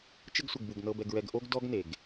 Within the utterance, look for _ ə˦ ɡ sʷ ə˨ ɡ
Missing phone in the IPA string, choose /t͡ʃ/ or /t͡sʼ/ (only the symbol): t͡ʃ